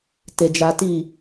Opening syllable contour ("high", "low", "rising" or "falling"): low